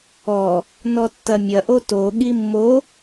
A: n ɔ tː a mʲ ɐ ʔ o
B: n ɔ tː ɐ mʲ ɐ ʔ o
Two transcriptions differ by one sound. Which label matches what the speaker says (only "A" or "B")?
B